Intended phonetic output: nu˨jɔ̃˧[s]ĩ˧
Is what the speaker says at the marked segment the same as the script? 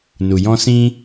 yes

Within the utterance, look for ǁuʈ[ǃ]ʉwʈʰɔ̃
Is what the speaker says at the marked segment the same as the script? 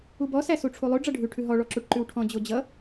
yes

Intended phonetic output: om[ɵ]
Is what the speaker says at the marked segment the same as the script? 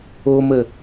no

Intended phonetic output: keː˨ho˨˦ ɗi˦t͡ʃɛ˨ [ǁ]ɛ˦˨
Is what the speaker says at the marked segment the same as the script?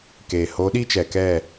no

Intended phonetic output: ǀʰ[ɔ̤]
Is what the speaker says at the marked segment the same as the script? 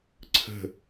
no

